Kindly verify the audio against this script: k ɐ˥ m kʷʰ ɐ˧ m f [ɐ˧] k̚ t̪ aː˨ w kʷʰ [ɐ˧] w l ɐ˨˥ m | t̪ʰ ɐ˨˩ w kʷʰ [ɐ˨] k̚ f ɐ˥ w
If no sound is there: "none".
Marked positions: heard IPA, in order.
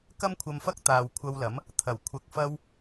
ɐ˥, ɐ˧, ɐ˧

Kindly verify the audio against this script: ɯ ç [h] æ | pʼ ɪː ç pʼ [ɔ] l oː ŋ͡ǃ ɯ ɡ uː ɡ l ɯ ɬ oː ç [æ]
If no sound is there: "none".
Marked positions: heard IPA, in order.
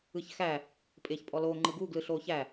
x, ɔ, æ

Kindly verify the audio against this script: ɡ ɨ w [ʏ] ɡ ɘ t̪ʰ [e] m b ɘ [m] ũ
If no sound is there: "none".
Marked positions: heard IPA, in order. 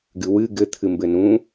ɨ, ɨ, n

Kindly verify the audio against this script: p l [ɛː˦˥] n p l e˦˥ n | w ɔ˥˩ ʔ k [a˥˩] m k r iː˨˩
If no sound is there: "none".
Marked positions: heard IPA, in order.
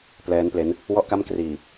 ɛː˦˥, a˥˩

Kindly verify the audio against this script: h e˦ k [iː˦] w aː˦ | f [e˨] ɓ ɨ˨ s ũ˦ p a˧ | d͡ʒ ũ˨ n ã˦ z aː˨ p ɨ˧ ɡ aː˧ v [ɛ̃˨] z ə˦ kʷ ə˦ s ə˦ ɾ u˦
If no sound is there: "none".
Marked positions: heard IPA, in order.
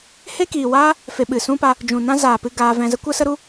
iː˨, e˧, ɛ̃˧

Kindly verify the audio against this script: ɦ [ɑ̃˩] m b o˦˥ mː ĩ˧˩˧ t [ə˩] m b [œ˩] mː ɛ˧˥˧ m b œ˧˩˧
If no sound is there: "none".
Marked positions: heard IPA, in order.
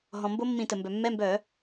ɔ̃˩, ə˩, œ˩

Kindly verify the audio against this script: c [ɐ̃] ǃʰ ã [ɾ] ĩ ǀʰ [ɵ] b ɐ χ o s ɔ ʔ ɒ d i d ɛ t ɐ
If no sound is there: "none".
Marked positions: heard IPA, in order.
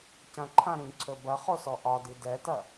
ɐ̃, ɾ, ɵ

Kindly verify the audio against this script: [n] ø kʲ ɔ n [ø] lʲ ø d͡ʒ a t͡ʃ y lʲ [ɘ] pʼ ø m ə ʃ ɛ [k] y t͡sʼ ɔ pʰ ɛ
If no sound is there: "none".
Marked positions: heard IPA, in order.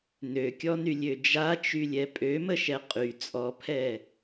n, y, ɛ, qʼ

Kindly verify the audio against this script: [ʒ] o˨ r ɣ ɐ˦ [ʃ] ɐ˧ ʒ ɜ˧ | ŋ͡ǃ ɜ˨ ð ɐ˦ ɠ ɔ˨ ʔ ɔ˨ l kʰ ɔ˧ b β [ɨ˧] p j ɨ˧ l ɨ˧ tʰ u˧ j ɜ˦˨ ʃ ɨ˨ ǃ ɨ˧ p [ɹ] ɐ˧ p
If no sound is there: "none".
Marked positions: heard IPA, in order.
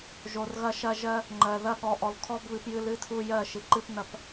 ʒ, ʃ, ɨ˧, n

